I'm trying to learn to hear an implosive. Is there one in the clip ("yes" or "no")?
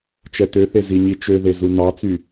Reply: no